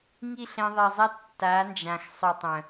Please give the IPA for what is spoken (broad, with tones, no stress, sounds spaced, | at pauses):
ŋ i˦˨ ɬ ɛ̃˧ ðˤ i˨ zˤ ɛ˦ tː a˨˦ n d͡ʒ ã˨ x sˤ œ˨ tˤ œ̃˨